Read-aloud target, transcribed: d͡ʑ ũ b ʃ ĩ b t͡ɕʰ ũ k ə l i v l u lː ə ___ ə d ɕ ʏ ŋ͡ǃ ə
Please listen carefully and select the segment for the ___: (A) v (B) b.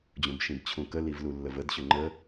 A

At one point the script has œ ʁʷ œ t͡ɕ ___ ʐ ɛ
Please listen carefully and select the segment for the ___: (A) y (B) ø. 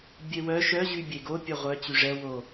A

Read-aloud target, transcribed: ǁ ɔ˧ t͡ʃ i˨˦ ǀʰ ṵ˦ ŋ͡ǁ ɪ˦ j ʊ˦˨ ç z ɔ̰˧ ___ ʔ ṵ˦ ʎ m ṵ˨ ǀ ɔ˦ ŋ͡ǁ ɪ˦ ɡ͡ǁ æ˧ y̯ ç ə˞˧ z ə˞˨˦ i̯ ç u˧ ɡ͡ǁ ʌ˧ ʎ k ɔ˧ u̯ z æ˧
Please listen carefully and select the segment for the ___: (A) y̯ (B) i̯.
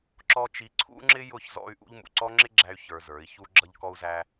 A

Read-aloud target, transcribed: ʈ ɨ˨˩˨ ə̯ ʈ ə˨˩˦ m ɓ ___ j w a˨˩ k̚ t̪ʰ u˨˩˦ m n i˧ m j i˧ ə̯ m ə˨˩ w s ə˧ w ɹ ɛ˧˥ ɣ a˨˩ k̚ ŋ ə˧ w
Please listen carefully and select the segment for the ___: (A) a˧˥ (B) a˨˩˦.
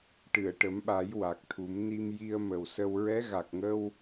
B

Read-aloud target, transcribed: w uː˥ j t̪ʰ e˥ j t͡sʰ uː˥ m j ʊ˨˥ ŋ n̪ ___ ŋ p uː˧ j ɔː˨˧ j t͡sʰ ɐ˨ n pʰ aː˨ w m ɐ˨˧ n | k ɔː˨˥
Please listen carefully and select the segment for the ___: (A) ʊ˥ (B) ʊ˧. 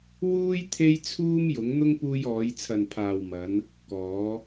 A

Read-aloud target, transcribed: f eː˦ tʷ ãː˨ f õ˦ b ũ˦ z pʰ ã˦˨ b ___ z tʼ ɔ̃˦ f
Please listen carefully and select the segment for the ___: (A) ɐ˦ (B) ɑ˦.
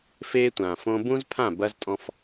A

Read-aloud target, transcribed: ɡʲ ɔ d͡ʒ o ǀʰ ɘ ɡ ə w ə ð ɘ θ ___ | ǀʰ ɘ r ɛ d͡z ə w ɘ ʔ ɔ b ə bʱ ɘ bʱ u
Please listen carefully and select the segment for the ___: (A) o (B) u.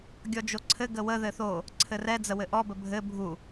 A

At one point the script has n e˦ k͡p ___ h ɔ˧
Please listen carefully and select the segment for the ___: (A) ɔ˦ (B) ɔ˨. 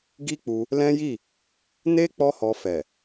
A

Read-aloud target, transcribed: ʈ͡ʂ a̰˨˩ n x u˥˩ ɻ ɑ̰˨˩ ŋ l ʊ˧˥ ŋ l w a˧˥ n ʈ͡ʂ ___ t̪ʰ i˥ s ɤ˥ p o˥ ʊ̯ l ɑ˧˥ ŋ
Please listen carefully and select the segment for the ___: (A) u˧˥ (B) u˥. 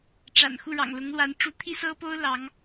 A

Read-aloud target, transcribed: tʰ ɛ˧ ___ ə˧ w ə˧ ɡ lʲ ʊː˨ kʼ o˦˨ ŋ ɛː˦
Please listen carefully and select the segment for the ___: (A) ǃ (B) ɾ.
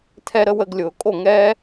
B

